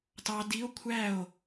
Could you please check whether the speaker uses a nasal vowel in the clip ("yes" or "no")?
no